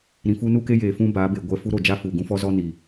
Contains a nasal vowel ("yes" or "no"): yes